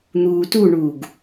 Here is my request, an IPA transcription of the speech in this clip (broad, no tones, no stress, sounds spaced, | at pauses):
n̪ uː t u ɳ uː ɡ